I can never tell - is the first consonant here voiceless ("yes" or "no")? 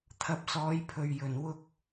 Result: yes